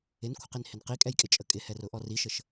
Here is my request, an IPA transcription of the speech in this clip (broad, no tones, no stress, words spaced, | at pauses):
ɪnkʷʰəqinhɪn qikʼɛjkʼɪt͡ʃʼə kʼɪhɛrʊʔɔ riʃəʃ